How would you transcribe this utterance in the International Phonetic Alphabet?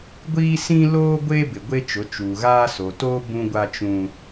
ɡʷiː˦sĩ˦loː˦ ɡʷeː˦bɪ˨ ɡʷe˦t͡ʃʊ˨˦t͡ʃuː˨ ɣaː˦ so˨toː˦ bũ˦ ɡʷa˦t͡ʃũ˦

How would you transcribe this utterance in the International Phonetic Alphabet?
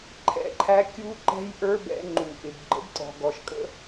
ǃʰɛ̰˧ǃʰæ˧˥ kʲu˥ǃɛ̤˥jʔə˞˥ bɛ̰˧ ŋ͡ǃu˩ʔɪ˩bɡ͡ǃə̰˧˥btʼɔ̤˩ ɡɔ˩ʃ kʼə̰˥

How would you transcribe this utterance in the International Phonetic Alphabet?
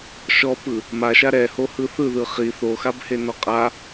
ʃɔpɯ | maʃa ɾɛhohɯ θɯðɯ χi θoxabhenɔ qʼa

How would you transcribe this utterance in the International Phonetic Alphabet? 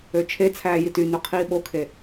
øt͡ʃʰet͡sʰæː jitynø qʰiːɓokʰe

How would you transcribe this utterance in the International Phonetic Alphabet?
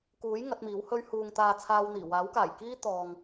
kuː˨˥j ŋɐ˨˥t̚miː˨˥whɵ˥ɥ huː˨ŋ t̪aː˧t͡sʰaː˧wn̪iː˨˩ waː˨˥wkaː˨˩j kiː˥t̪ɔː˨ŋ

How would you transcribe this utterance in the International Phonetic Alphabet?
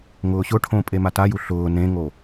ŋʊːɕʊʈʰõ pʼemataju ɬʊː nẽŋo

